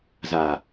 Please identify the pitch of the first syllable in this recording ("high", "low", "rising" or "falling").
low